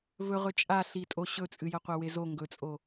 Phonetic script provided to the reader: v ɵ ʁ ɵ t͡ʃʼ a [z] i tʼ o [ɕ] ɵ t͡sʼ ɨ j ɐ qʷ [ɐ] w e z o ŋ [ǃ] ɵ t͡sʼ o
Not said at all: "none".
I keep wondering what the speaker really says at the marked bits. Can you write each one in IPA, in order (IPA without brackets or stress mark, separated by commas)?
ɬ, ɕ, a, ɡ